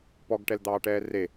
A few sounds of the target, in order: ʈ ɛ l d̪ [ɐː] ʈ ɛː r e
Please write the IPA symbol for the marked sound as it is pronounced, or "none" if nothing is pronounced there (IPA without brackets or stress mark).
ɑː